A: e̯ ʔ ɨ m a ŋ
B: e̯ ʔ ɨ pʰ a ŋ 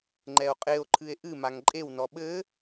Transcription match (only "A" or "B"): A